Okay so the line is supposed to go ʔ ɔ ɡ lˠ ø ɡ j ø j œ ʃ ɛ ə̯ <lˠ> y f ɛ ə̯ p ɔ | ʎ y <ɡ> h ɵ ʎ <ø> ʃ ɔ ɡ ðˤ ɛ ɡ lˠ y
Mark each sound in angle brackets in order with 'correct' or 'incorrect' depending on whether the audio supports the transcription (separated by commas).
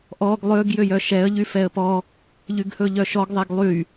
incorrect, correct, incorrect